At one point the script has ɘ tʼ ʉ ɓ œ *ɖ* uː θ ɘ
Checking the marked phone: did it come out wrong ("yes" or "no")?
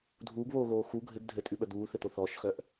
yes